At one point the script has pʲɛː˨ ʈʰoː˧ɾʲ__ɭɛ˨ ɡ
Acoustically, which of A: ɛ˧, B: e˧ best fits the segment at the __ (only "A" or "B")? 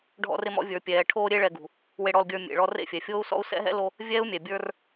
B